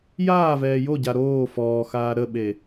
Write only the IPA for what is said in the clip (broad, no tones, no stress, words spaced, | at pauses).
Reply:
jaːvɛː joɟa ɾoː fɔːxaː ɾəɓe